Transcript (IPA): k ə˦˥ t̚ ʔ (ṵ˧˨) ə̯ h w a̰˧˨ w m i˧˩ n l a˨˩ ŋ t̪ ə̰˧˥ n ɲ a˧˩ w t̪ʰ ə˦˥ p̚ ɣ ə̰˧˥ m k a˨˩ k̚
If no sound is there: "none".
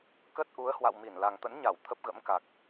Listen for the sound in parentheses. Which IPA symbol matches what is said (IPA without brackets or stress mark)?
u˨˦